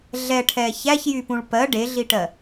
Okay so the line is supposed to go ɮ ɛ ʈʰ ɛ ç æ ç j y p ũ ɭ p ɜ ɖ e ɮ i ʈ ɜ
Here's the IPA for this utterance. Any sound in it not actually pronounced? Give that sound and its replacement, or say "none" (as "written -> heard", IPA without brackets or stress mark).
none